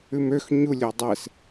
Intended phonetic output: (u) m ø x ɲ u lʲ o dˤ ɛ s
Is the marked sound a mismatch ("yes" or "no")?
yes